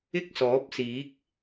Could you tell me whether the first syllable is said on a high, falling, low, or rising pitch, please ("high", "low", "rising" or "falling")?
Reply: high